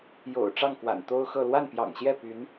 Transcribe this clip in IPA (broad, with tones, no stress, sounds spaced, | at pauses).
j o̰˨˩ ʊ̯ ʈ͡ʂ ɑ˥˩ ŋ k w a̰˨˩ n t̪ o˥ ʊ̯ x ɤ˥˧ l w a˥˩ n p j ɑ̰˨˩ ŋ ɕ j ɛ˥˩ p y˧˥ n